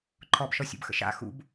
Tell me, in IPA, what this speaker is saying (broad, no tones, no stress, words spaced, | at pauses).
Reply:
ǃʰɔbʃɔsʲṵbxə̰ ʃa̰ xṵb